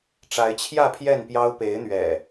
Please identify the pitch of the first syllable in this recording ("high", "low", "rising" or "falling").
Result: rising